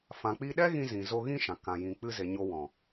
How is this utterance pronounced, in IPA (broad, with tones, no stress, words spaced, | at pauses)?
fã˨k͡pi˧ɗɛ˦ ɣĩ˧zĩ˨ zo˧ɣĩ˦ʃã˨ kã˨jĩ˨ k͡pɨ˧ze˨ ɲo˧wɔ̃˨